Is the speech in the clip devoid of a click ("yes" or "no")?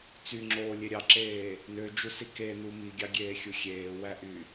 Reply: no